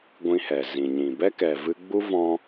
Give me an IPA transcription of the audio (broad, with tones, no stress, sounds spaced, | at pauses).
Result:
ɡʷ ĩ˧ h ɛ˨ z ĩ˨ ɲ ĩ˨ b ɛ˦ k ɛ˨ v ɨ˧ ɡ͡b u˦ v ɔ̃˦